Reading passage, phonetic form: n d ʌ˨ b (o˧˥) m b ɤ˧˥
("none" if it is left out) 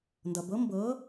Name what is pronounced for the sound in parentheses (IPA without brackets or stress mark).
ɤ˧˥